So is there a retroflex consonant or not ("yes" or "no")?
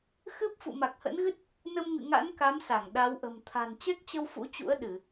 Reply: no